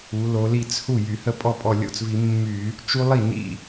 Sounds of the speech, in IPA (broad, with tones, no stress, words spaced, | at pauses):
u˩˧lo˩˧ li˧˩t͡s hu˥˩ jy˧˩˧hə˥˩ pʼɔ˥˩pʼɔ˧˩lʲo̰˥˩t͡svi˧˩˧ mːy˧˩˧ | t͡ʃu˦lˠi˥˩ nḭ˥˩